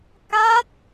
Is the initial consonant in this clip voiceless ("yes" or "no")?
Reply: yes